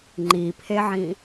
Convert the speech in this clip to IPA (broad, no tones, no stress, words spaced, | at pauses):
ŋ͡ǃipʰeʕĩ